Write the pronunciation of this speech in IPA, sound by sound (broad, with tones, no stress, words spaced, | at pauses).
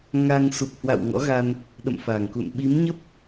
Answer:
ŋa˧ŋ su˨˩p̚hwa̰˧˨w ŋɔ̰˧˥ɣa˧n | ɗə̰˧˨mfa˨˩ŋkṵ˧˨nɓi˨˦m ɲə˦˥p̚